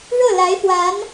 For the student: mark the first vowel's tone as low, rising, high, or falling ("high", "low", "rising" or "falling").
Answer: falling